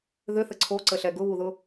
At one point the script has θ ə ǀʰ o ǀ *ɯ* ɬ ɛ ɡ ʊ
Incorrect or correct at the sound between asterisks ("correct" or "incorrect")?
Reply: incorrect